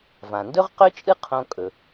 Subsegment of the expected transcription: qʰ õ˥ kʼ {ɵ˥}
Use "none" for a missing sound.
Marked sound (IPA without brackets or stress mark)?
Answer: ɵ˩